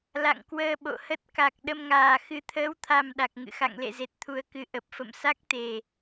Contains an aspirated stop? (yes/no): yes